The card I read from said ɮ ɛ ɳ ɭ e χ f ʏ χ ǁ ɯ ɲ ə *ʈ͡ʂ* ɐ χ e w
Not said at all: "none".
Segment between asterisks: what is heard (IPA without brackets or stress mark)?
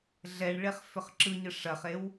ʂ